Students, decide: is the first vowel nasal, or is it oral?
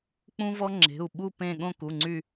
nasal